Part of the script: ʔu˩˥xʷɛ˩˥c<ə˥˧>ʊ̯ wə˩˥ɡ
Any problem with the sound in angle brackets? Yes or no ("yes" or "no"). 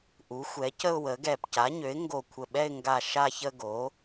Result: no